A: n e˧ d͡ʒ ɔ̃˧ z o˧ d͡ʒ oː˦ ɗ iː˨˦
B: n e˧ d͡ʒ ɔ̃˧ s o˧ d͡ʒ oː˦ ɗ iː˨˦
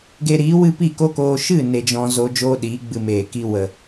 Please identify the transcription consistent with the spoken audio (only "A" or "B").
A